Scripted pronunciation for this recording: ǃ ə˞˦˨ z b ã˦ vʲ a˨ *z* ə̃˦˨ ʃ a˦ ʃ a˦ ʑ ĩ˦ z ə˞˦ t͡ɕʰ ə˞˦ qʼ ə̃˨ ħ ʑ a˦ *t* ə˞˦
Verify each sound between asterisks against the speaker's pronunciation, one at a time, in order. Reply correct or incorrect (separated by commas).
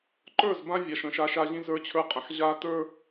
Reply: incorrect, correct